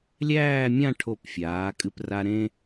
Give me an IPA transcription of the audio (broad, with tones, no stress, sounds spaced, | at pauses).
lʲ æː˥˧ mʲ ã˥˧ ʈʰ o˧˩ p fʲ aː˩˧ kʼ ɨ˥ p r a˥ ɾ ẽ˥